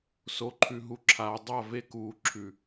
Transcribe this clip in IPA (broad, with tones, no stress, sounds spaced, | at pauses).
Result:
s o˨ ǃʰ ʉ˨ ɦ u˨ ǁʰ aː˨ dˤ a˦˨ v e˦ k uː˨ ǁʰ ʉ˨